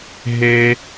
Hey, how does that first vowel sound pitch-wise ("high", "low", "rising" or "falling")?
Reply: high